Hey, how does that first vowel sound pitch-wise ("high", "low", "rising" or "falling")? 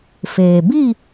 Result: low